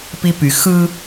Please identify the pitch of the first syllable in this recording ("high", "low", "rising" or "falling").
high